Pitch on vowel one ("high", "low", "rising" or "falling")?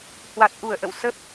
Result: low